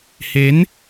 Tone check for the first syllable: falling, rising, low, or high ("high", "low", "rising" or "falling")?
rising